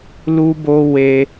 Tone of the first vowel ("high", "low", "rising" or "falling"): high